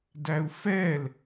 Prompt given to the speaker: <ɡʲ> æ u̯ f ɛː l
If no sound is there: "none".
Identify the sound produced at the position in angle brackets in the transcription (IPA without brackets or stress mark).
d